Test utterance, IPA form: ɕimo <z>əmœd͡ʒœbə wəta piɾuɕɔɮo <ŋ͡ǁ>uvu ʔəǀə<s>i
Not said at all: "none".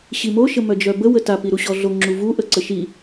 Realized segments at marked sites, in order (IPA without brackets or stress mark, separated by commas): ʃ, ŋ͡ǁ, ʃ